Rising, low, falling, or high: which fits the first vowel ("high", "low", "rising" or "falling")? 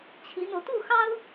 rising